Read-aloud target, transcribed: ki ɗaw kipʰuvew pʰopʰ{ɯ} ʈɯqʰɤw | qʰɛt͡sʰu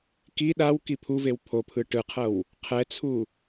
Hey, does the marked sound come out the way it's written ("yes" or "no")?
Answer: yes